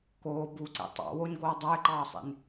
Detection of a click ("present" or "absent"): present